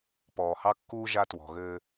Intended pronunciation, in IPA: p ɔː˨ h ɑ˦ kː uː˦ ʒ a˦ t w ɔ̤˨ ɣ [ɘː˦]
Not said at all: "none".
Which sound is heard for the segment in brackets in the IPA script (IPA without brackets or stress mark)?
ɘː˦